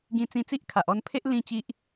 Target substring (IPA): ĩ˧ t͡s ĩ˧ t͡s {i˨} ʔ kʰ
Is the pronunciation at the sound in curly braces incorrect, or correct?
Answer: incorrect